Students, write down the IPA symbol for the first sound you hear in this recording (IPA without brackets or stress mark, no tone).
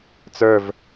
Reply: t͡s